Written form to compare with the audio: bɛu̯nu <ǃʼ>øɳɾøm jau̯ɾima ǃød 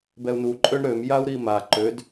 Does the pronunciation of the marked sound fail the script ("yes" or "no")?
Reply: no